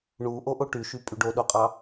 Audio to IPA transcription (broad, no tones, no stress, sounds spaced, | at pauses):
ɳ u ʔ o ʔ o ʈ y ʃ y pʼ y ɖ o ɗ o qʼ ɑ